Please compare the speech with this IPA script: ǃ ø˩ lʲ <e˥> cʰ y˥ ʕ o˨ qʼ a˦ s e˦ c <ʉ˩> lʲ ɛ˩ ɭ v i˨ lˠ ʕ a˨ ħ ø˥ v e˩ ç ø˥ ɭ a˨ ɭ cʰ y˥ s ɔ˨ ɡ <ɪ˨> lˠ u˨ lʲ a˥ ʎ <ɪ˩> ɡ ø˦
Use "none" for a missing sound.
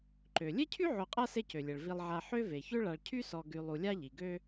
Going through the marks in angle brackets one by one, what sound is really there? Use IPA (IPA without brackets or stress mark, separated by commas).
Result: e˥, ø˩, y˨, i˩